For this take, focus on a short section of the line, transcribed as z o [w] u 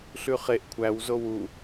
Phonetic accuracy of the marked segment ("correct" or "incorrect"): correct